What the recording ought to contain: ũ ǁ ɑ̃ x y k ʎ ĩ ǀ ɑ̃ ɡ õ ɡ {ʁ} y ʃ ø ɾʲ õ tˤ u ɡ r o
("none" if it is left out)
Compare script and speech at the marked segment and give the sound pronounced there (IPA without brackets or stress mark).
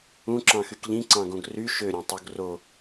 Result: r